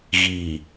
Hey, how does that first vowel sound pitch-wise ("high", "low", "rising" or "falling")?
low